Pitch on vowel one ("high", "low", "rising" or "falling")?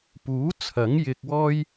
rising